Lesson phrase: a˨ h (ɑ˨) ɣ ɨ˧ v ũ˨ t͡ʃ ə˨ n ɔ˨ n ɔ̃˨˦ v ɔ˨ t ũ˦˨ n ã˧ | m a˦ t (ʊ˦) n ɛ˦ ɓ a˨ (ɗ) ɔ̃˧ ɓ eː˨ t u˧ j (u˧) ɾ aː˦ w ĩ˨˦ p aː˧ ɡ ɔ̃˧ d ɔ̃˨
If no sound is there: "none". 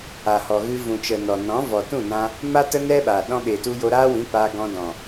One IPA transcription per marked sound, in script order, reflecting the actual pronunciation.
ɔ˨, ə˦, ɗ, o˧

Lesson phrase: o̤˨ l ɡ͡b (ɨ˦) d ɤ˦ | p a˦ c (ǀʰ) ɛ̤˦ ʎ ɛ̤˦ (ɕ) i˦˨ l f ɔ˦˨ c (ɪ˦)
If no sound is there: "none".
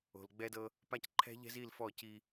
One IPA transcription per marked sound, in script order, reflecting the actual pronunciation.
ɛ˦, ǃʰ, z, i˦

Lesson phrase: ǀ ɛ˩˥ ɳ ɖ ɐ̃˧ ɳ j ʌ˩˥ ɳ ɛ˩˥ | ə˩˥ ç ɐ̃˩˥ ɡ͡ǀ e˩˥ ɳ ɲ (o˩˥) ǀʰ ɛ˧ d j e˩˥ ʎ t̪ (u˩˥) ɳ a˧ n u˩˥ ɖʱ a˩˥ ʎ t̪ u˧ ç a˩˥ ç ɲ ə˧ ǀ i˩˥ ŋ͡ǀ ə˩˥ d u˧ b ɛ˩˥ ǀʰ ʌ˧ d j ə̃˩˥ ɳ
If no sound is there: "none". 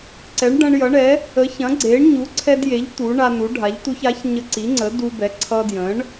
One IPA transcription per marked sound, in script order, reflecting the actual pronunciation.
u˩˥, u˩˥

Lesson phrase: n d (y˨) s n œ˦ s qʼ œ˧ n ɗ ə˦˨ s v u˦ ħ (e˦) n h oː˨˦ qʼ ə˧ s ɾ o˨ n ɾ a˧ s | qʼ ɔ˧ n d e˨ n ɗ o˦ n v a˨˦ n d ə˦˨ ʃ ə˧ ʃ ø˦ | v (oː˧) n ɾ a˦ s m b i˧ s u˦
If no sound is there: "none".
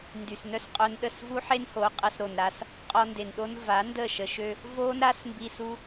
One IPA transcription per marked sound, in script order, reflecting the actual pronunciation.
y˨, e˦, oː˦

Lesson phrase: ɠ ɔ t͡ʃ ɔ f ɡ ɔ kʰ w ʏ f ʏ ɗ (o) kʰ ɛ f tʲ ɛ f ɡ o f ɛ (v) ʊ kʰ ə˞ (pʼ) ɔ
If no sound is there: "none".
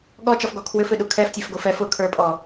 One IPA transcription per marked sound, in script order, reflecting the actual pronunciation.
u, f, pʼ

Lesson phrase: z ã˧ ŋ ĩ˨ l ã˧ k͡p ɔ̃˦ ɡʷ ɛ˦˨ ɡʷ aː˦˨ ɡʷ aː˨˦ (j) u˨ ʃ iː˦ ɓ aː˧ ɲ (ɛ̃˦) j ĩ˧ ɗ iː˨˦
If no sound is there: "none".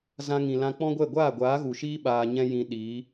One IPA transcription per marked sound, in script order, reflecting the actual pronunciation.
ɣ, ɛ̃˦

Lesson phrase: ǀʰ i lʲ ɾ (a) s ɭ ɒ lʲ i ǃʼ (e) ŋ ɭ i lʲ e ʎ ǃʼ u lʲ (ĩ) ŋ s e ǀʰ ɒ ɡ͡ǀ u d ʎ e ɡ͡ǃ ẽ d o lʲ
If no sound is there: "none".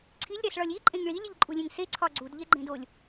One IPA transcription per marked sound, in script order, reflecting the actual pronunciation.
æ, ẽ, ẽ

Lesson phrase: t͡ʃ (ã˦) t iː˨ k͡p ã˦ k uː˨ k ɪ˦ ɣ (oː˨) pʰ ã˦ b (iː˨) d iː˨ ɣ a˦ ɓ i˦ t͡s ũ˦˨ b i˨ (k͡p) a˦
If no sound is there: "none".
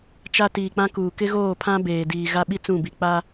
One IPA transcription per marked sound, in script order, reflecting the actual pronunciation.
a˦, oː˦˨, eː˨, k͡p

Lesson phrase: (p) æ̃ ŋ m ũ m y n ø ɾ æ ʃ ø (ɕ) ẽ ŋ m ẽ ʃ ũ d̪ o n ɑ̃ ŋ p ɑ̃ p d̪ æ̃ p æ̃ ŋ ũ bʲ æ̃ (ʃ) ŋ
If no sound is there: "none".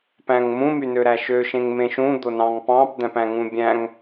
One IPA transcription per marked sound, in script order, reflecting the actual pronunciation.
p, ʃ, none

